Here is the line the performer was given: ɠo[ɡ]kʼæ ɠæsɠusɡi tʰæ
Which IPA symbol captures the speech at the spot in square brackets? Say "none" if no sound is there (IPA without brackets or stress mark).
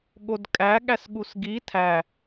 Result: d